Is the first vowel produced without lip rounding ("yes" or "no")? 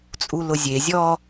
no